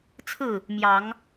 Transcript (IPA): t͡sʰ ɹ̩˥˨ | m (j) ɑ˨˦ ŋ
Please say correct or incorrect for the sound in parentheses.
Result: correct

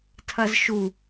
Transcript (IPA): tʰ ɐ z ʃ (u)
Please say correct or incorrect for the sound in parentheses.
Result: correct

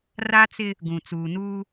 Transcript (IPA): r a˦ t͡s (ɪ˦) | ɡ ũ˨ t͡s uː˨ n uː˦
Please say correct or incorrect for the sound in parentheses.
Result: correct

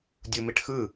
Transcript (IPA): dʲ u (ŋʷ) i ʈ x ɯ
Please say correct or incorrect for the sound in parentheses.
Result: incorrect: m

